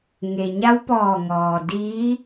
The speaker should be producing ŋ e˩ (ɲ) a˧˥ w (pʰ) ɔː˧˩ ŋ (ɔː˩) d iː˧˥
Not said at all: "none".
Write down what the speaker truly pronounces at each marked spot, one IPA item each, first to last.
ɲ, p, ɔː˩

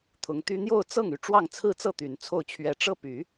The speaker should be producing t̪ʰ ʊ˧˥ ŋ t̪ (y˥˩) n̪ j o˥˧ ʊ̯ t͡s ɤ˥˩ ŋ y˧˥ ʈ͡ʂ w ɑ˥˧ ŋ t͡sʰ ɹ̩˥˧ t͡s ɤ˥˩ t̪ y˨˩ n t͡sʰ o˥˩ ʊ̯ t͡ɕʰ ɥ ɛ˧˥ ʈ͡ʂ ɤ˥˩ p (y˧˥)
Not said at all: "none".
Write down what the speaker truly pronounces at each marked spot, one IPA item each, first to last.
y˥, y˨˩˦

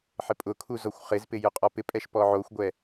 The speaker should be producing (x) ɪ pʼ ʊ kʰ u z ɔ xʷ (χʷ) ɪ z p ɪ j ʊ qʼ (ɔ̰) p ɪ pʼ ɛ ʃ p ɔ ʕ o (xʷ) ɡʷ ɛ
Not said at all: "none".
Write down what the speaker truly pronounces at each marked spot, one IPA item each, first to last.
ħ, χ, ɔ, xʷ

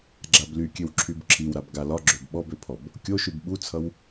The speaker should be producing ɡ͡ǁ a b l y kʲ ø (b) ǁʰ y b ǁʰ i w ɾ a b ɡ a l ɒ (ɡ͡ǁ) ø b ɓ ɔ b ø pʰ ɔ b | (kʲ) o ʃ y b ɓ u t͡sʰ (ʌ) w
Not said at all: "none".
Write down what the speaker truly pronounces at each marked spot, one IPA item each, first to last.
w, ɡ͡ǁ, kʲ, ʌ

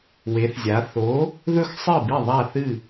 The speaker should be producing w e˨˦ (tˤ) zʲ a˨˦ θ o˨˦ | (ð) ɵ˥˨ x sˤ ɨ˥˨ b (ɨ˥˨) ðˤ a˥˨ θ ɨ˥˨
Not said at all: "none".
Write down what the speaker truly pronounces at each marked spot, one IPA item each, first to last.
θ, ð, i˥˨

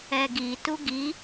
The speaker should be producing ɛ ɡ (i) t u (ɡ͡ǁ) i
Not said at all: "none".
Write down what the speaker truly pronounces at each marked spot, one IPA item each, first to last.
i, ɡ

